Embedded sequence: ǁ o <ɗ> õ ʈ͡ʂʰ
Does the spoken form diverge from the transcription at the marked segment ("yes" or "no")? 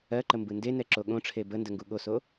yes